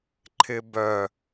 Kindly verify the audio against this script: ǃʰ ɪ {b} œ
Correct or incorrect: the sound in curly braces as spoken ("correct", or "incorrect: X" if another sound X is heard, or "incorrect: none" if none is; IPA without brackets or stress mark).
correct